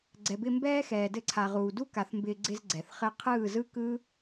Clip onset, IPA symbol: ɡ͡ǀ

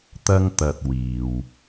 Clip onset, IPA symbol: t̪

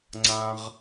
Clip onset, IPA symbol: ŋ͡ǀ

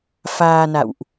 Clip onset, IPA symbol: f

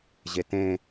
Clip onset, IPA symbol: ʑ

